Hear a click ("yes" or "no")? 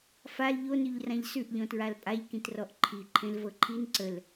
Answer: yes